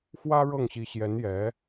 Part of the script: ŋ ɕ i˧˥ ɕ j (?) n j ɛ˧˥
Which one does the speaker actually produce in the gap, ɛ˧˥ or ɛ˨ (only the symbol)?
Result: ɛ˧˥